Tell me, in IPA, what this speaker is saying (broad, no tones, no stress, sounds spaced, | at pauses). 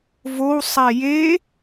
v o w sˤ ɛ j e